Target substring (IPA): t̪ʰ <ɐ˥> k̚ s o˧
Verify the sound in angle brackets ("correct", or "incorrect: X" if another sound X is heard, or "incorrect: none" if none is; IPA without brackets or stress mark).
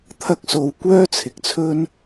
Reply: correct